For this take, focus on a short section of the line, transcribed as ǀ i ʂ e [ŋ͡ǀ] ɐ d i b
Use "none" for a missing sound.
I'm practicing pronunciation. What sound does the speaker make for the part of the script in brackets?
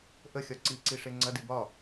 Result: ŋ͡ǀ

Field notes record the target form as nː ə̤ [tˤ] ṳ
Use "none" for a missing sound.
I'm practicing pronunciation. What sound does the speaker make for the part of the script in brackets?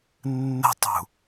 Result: tˤ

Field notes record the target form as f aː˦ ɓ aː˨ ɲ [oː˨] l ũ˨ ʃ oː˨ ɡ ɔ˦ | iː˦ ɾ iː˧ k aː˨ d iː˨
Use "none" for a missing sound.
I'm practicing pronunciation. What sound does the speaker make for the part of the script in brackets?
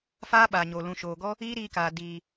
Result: o˨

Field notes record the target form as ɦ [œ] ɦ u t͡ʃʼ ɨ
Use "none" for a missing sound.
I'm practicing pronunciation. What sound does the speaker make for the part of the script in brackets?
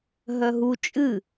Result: œ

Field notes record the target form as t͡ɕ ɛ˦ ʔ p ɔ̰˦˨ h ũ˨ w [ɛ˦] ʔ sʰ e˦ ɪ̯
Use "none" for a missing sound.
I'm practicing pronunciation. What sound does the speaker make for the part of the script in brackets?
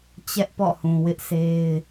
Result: ɪ˦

